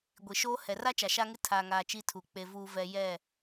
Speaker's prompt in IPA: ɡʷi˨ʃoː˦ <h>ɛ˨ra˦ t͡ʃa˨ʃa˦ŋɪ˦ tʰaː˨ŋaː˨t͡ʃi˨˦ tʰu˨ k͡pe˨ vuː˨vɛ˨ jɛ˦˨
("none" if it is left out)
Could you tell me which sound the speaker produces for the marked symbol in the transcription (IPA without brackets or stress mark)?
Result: h